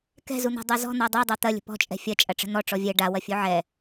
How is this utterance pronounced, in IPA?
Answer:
k ɛ̤ z u n̪ a̤ dˤ ɤ z ɔ̤ n̪ ɔ dˤ o dˤ a t̪ ɐ lʲ ə̤ p ɔ̤ t͡ʃʼ ɛ̤ fʲ ɐ t͡ʃʼ ɐ ʈ͡ʂ ə̤ n̪ ɔ ʈ͡ʂ ɔ vʲ ɛ ɖ a w ɐ fʲ u ʕ ɛ

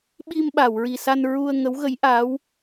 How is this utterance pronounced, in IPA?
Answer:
ɓ i˧ m ɓ a˨˩˨ w ɹ i˨˩ s a˧ n ɹ u˧ ə̯ ŋ ə˧˥ w ɣ ə˧˥ j ʔ a˧˥ w

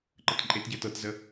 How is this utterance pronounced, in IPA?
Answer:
ǃ ə t ǃʼ e t ɟ ə t ɤ t z ə

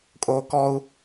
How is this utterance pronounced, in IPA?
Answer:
kʼ o k ɔ u̯

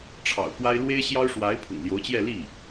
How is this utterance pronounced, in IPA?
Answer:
ʈ͡ʂʰ ɑ̰˨˩ ʊ̯ k w a˥ ɪ̯ l w e˥ ɪ̯ ɕ j ɑ˥ ʊ̯ ʂ w a˧˥ ɪ̯ pʰ ʊ̰˨˩ ŋ l j o˧˥ ʊ̯ t͡ɕ j ɛ˥˧ l i˥˩

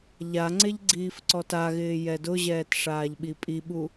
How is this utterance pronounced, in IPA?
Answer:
ʎ a ŋ͡ǀ e ʎ ɡ͡ǀ iː f ǀ ɔ t a ɣ ɪː j ɛ d ʊ ʑ ɛː t ʂ aː ʎ ɓ i pʼ i ɓ u

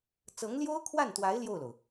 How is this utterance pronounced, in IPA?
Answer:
t͡s ɤ˧˥ ŋ l j o˥ ʊ̯ kʰ w a˥˩ n t̪ w a˧˥ ɪ̯ l j o˥˩ ʊ̯ l o˩ ʊ̯

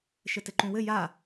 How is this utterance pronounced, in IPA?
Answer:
ʃ ɘ t ɘ ǃ ũ w ɘ j a

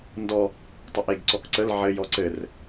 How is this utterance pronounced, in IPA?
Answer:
n d ɔ | tˤ ə ʔ e ɡ ǀ ɔ k ǀ ə l ʕ ɘ j ɔ ǀ ɘ r

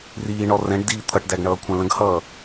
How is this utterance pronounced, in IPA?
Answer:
r iː ɳ ɔ r ɛ̃ ɖ d iː t̪ʰ ʌ ʈ d æ ɡ ɳ ʌː kʷʰ ɛ̃ l ə̃ ɡ h ʌː

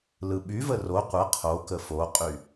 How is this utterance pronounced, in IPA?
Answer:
l ɯ ɓ y v ə r o qʷ ə qʰ o k ə f o qʼ y

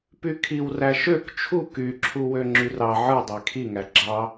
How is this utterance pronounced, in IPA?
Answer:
p y kʰ i w r æ ʃ ø k t͡ʃʰ u k y ǁʰ u w ø ŋ͡ǁ y r ɑ ʕ ɯ dˤ e kʰ i ŋ æ ɡ͡ǁ ɑ

